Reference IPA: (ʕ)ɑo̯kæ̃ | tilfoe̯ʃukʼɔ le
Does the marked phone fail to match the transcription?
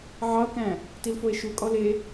no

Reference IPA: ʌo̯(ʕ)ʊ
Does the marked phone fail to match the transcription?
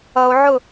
no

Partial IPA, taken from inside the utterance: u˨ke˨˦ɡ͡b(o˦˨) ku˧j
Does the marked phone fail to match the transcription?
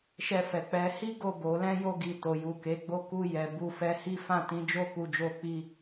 no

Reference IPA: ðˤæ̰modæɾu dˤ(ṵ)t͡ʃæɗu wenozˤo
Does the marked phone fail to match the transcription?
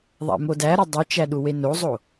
yes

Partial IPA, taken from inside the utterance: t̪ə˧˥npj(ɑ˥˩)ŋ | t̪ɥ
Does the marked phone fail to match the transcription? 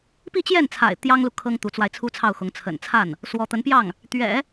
no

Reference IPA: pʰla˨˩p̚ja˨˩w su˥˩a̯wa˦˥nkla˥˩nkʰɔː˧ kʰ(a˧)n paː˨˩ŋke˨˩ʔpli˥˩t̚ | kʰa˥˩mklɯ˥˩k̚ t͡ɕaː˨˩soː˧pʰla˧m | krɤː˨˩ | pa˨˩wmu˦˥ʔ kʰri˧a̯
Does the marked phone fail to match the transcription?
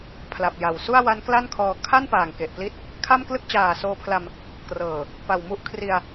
yes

